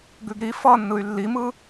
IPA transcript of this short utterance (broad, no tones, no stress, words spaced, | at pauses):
ɡʉɡɾi fʌ nːɯy̯lːimɯ